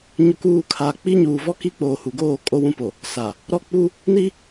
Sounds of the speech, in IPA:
ɲ ʊ˦ k uː˦ kʰ a˨ k͡p i˦ ɲ uː˨ v ɔ˦ k i˦ k͡p oː˨ h u˨ ɡ oː˦˨ kʼ o˦ w ũ˦ p o˨ | s a˨ | ɾ ɔ˦ k͡p u˦ | n i˦

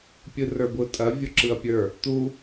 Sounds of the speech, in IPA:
pʲ ɯ r ə˞ b ʊ tʼ ɐ vʲ ʊ ǁ ɯ ɐ̯ pʲ ə˞ | t̪ u

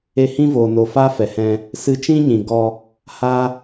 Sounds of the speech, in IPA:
e˧ h ĩ˦ v oː˨ n o˨ f a˦ f ɛ˨ h ɛ̃˧ | s ɨ˧ t͡ʃ ĩ˦ ɲ ĩ˨ ɡ ɔ˧ | h a˦

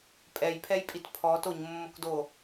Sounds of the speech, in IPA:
pʼ ɛ j pʰ ɛ j pʼ i t pʰ ɔ t o ɲ mː o k d o

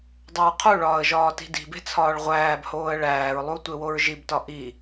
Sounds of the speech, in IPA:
dˤ o ɹ qʰ u ɭ ɒː ə̯ ʒ ɒː t i̤ d i̤ b e̤ t͡sʰ ɒː ɭ ʁʷ æː b h oː ə̯ ɭ æː ɹ lˠ u tʷ e w o ɹ ʒ i b t ɒ ʔ i

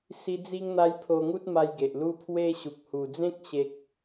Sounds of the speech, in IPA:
s i˧ d͡z i˧ ŋ n̪ a˧ j pʰ o˧ ŋ u˦ t̚ m a˧ j ɡ e˨ ʔ l u˧ pʰ w e˧ ɕ u˨ k̚ h u˨˩ d͡z ẽ˦ k̚ ɕ e˦ k̚

